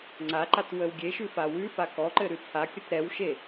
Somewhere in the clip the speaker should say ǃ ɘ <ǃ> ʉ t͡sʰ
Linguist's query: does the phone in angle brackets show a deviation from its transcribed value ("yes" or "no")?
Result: yes